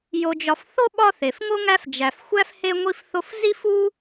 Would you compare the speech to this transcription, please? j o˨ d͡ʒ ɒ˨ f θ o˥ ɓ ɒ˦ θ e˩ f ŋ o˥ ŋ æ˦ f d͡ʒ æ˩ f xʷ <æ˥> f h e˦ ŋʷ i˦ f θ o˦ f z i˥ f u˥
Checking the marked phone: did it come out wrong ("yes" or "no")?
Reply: no